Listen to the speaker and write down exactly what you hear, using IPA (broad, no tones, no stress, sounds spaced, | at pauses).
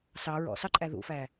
s ɑ ɹ ɔ̰ s ɑ ǃʼ æ ð ṵ f æ